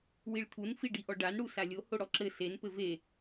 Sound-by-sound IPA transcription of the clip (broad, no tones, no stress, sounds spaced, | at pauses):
w i ɭ t̪ʰ u n f i ɖ i ʔ ɔ ɖ a n ɽ u s a lʲ o h o ɽ ɔ ǁ ɘ s e n p ɘ v e